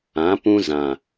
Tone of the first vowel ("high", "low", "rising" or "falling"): rising